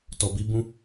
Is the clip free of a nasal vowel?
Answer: no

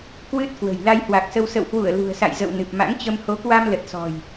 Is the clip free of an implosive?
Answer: yes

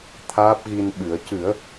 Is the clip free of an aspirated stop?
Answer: no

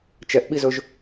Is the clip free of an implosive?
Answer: no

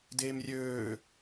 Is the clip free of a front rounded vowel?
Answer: no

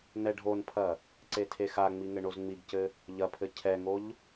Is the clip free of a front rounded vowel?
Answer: yes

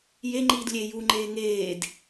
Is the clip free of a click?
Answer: no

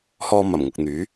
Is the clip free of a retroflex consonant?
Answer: yes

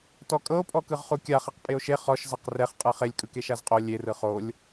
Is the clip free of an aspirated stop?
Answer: yes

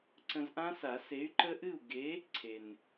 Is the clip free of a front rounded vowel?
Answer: no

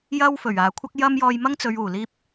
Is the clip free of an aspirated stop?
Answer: no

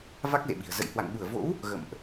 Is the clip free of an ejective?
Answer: yes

